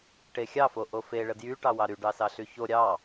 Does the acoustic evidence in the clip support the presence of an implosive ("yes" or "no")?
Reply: no